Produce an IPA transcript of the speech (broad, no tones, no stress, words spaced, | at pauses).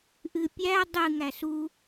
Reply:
ʔɨpʲæ dˤɨ ŋæsu